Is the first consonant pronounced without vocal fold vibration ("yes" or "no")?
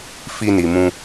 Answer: yes